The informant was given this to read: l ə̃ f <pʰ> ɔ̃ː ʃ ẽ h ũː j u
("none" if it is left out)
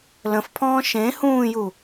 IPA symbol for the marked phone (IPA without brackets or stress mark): pʰ